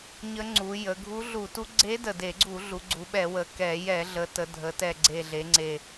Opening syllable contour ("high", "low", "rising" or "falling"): rising